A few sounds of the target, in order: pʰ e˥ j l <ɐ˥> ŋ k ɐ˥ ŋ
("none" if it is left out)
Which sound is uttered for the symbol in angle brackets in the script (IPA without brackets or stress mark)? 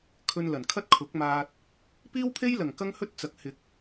ɐ˨˩